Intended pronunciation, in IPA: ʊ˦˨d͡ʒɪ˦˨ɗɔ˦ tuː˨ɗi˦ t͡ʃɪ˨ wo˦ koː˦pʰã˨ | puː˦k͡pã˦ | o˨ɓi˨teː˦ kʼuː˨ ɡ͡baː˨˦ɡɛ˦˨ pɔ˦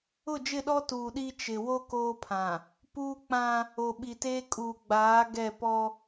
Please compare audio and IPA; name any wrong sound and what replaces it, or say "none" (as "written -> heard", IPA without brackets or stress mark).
none